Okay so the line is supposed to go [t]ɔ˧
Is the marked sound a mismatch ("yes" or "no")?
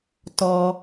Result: no